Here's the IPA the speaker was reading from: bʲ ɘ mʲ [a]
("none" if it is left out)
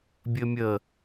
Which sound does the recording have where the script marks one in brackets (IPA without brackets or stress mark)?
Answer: ə